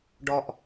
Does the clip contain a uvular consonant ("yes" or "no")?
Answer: no